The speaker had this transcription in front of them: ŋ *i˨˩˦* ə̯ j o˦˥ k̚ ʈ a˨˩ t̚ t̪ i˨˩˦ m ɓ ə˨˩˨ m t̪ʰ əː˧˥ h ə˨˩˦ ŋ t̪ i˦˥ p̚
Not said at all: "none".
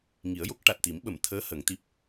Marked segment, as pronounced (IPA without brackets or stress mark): i˨˩˦